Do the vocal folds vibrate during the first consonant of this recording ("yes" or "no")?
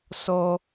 no